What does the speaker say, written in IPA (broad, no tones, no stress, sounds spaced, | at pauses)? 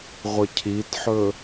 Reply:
ʁʷ ə cʰ i t ħ ɵ